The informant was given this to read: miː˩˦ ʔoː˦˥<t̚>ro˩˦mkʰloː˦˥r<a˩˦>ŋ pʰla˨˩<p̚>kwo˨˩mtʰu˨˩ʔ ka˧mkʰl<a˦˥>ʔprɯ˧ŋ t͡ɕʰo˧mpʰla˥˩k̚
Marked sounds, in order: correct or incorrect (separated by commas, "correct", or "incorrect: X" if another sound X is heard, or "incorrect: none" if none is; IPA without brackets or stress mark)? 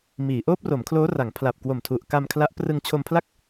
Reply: incorrect: p̚, correct, correct, correct